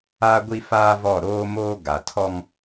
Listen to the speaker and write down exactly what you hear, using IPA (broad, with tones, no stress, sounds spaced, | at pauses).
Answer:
a˦ ɡʷ i˦ f aː˦ v ɔ˦˨ ɾ oː˦ m oː˦ ɡ a˨ tʰ ɔ˦ ŋ